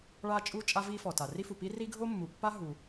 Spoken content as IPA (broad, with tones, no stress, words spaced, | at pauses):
ɭa˥t͡ʃʼu˥ t͡ʃʼa˥vi˥fɔ˩ta˩ ri˥fu˩ pi˥ri˥ ɡʱo˥mːu˩pːa˥ ɦu˩